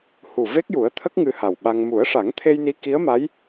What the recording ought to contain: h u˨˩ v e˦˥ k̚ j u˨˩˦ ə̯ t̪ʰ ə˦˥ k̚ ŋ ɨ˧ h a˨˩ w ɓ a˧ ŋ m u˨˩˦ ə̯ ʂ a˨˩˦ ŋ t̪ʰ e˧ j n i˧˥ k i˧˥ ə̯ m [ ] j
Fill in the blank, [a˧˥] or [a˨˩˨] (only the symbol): a˧˥